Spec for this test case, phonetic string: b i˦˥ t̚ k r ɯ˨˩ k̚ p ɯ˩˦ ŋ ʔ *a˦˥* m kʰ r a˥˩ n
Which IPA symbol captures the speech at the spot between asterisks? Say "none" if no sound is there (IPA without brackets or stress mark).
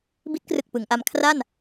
a˧